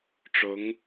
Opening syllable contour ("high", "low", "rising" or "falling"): rising